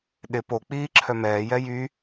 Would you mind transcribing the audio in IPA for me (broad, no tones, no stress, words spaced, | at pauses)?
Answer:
ɗɪ po k͡piːǁʰœmɛːjɛ jy